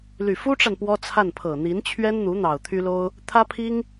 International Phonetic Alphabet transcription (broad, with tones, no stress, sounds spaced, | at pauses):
l y˨˩ f u˥ ʈ͡ʂ a˨ n p w ɔ˥ t͡sʰ a˥˩ n pʰ ɤ˨˩ n̪ i˧˥ n t͡ɕʰ ɥ ɛ˥ n n̪ u˧˥ n̪ ɑ˨˩ ʊ̯ t̪ʰ y˥ l o˥ ʊ̯ | t̪ʰ ä˥ pʰ i˥ ŋ